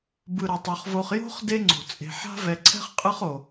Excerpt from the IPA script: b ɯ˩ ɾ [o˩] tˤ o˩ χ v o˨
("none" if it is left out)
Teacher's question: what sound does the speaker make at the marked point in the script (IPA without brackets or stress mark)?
o˩